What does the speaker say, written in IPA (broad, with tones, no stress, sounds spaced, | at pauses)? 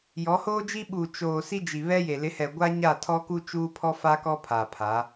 j ɔ˨˦ h oː˦ d͡ʒ i˦ ɓ u˨ t͡ʃ oː˨ s i˦ d͡ʒ i˨ β ɛ˦ j e˨ l ɪ˨˦ h ɛ˨ ɡʷ a˦ ɲ a˦˨ tʰ ɔ˦ k u˦ t͡ʃ uː˦ pʰ ɔ˦ f a˦ k ɔ˦ pʰ a˨ pʰ a˨˦